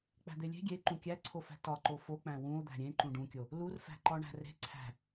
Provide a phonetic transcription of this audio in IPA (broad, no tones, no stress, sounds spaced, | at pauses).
k͡p æ̤ d̪ e lʲ e̤ ɡʲ e ǃ ũ kʲ æ ǀʰ o f æ̤ t ɒ ǃ o f o k͡p æ̃ w ũ o̯ d̪ æ̤ ɾʲ ẽ ǃ ũ ɖ ũ kʲ o | l u r f æ̤ ǃ ɒ ɳ æ̤ r e̤ ǀʰ æ̤